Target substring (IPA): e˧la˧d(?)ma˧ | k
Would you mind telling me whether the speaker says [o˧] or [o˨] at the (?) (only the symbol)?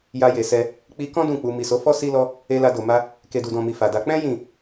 o˨